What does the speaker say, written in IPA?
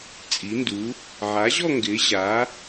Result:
t͡sʼi˩˥ndu˩˥ | ʕa˩˥ʑɔ˥˧ ŋɡɪː˩˥ʑa˩˥

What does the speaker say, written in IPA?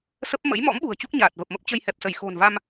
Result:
sə˦˥p̚ mə̰˧˥jmɔ̰˧˥mɓṳ˨˩ə̯ t͡ɕu˦˥k̚ɲaː˨˩t̚ və˨˩p̚mə˦˥p̚ t͡ɕə˧jhɛ˨˩p̚sə˧˩j xo̤˨˩nva˧m

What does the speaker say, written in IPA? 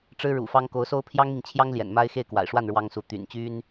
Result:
ʈ͡ʂɻ̩˥ɻṵ˨˩fɑ˥ŋ ko˧˥ʊ̯so˥ʊ̯ pʰjɑ˥ŋmi˨ŋt͡ɕʰjɑ˥ŋ ljɛ̰˨˩nma˥ɪ̯ xe˥˩ɪ̯kwa̰˨˩ɪ̯ʂwa˥˩n ɻwɑ˥ŋsu˧˥ t̪y̰˨˩nt͡ɕy˥n

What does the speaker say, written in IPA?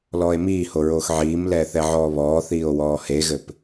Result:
lɔːe̯miːho ɹoːxʕiːmlɛː θɛʕɔːβɔːθiːo̯ wɔːheɣɘp

